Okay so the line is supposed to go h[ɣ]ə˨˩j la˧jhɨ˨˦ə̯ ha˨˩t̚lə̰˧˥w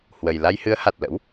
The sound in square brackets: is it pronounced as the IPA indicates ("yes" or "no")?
no